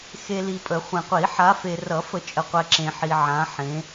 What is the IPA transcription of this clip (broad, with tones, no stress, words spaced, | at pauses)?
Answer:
xe˨ li˨pʼə˨˩˦ χʷẽ˨qʷi˨˩˦ ħa˨˦fe˨ rʌ˨˩˦fə˨˩˦t͡ʃʼə˨qʷɛ˨ ǁẽ˨ħi˨ ʕã˨˦ħẽ˨˦